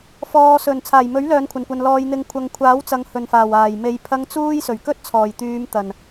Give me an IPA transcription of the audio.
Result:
f ɔː˨ s ɵ˨˩ n t͡sʰ aː˨˩ j m ɵ˨˥ ɥ l œː˨˧ n kʷʰ ɐ˨˩ n kʷ ɐ˨ n l ɔː˨ j n̪ ɪ˨˧ ŋ kʷʰ ɐ˨ ŋ kʷʰ aː˨˥ w t͡s ɐ˨ ŋ h ɵ˨˩ n f aː˨˩ w aː˨˩ j m e˨˧ j pʰ ɐ˧ ŋ t͡s uː˥ j s ɵ˨˩ ɥ k ɵ˥ t̚ t͡sʰ ɔː˨˩ j t̪ yː˨˧ m t̪ ɐ˨˩ n

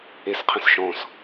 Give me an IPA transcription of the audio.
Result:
e s qʰ ə̃ s ʃ ɔ̃ s

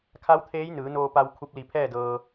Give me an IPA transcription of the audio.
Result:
kʰ a˧˥ w t̪ʰ eː˧˥ j n ɯː˩˧ n oː˧ p a˧ w kʰ u˧ p̚ l i˧˩ pʰ ɛː˥˨ d ɤː˧

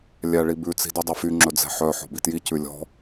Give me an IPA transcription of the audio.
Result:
lʲ æ ɭ i b ʉ t͡s i̤ d y dˤ ɛ f y ŋ͡ǁ ɵ d͡z ɛ̤ ħ œ ħ ɔ̤ b i t j i c ʉ lʲ ɔ̤

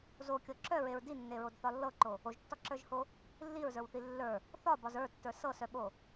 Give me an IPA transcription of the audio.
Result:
z o kʲ ɤ ǁ œ ɹ e ɹ d i nː e ɹ o d θ ɒ lː ɤ ǃ o | o ʒ tː ɒ ǁ ə˞ ʒ h o | lː i ɹ z ə˞ w θ i lː ə˞ | θ ɒ b ɒ z ə˞ tː ə˞ s ɤ s œ ɓ o

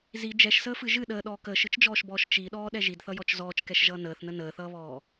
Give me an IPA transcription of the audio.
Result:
z i d͡ʒ ɛ ʃ s əː f ɨ ʒ ɨ ɗ əː ɗ ɔː k əː ʃ ɨ t͡ʃ d͡ʒ ɔː ʃ b ɔː ʃ t͡ʃ i ɗ ɔː ɗ ɛ ʒ i d θ ʌ j ɔ t͡ʃ z ɔː t͡ʃ k ɛ ʃ ʒ ʌː n əː θ n ə n əː θ ʌː β ɔː

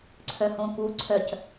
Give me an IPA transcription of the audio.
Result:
ǀʰ œ h õ k u ǀʰ œ c

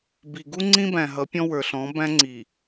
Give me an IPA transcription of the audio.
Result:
b i˨ ɡ u˦ ŋ͡ǀ ĩ˦ b æ̃˨ ɦ ʌ˨˦ pʲ ɔ̃˦ w ə˞˨ ɬ ɔ̃˨˦ b æ̃˦ ŋ͡ǀ i˨

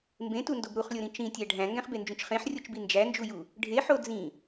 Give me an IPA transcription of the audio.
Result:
m b ẽ t u n d o b ɾ u χ lʲ o ɾ ĩ t͡ʃ ĩ tʲ æ ɖʱ æ̃ ŋ ɡ æ̃ χ b e n d͡ʒ ũ t͡ʃ χ ẽ ħ rʲ o t͡ʃ b i n d͡ʒ æ n d͡ʒ u j u | ɖʱ e ħ o d͡z ĩ

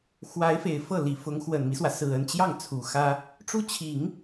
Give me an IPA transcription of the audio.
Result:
x w a˧˥ ɪ̯ f e˨˩ ɪ̯ f ɤ˥˩ l i˨˩ f ʊ˧˥ ŋ x w ə˨˩ n m i˦ s w ä˩ s ɹ̩˨˩ ə˥˧ n t͡ɕ j ɑ˥˩ ŋ t͡sʰ u˨˩ x ä˥ | ʈ͡ʂ u˥ t͡ɕʰ i˨˩˦ ŋ

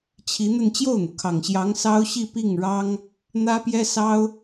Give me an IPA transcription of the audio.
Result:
t͡ɕʰ i˧˥ n̪ ə˥˧ n t͡ɕ j o˥˩ ʊ̯ n̪ u˩ kʰ ɑ˨˩ ŋ ɕ j ɑ˧˥ ŋ s ɑ˥ ʊ̯ ɕ i˥˧ p i˥˩ ŋ ɻ ɑ˥ ŋ | n̪ ä˥ p j ɛ˥ s ɑ˥ ʊ̯

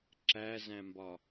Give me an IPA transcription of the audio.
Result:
ǁ æ z æ̃ m b ɒ

